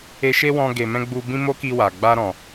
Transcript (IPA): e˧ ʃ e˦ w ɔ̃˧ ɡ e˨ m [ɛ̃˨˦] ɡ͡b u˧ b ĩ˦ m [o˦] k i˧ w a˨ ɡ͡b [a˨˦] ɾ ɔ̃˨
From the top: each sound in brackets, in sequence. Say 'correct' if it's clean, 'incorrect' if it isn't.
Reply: incorrect, correct, incorrect

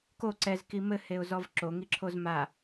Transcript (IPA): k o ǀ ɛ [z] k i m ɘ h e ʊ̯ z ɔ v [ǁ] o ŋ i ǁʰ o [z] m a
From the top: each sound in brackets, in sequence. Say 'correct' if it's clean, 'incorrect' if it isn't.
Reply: correct, correct, correct

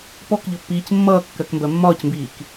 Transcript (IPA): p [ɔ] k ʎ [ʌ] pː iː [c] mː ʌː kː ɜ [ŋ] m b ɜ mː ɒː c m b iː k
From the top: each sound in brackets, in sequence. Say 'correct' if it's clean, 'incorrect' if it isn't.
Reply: correct, correct, correct, incorrect

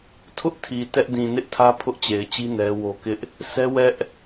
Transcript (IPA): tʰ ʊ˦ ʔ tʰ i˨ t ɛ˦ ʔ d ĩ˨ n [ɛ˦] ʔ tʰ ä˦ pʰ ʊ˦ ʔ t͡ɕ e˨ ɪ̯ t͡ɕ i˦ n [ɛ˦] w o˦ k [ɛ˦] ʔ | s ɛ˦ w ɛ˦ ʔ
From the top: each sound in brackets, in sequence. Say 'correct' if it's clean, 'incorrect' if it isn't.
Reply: incorrect, correct, incorrect

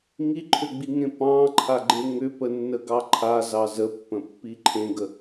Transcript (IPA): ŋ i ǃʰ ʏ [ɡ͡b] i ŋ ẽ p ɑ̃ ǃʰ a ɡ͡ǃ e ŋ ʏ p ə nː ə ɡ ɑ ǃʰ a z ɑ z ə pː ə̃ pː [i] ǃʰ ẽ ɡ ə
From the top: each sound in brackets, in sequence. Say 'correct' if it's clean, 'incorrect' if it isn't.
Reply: correct, correct

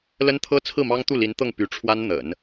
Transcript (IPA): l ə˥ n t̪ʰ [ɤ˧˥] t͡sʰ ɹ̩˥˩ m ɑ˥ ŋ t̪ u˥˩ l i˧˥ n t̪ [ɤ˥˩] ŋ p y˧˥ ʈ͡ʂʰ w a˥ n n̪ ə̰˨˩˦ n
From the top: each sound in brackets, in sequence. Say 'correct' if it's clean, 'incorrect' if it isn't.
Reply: incorrect, correct

